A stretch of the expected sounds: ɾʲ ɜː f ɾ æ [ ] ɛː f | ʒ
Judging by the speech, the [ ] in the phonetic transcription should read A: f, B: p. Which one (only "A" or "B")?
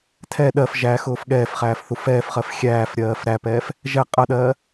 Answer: B